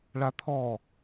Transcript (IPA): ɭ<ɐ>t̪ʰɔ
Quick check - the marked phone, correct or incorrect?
incorrect